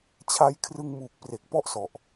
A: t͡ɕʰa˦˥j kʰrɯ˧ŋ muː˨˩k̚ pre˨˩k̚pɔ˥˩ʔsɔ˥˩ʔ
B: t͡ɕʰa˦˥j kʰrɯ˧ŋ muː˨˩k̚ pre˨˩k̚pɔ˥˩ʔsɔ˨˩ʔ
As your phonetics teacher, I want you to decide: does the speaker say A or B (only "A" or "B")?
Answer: B